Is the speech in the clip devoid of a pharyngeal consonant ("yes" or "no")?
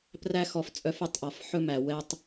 no